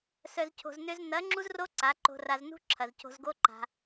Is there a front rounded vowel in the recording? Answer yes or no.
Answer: yes